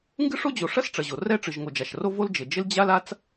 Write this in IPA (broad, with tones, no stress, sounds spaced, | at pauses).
ŋ ɡ ɨ˥ ʂ o˥ d͡ʑ o˩ ʂ ɐ˥ s ʈ͡ʂ ɐ˩ ʑ o˩ r ɛ˥ ʈ͡ʂ ɨ˩ ʒ ŋ o˩ d͡ʒ a˩ ʃ r o˥ v o˥ l d͡ʒ ɘ˩ d͡ʒ ɘ˥ l d͡ʑ a˥ l a˥ t͡s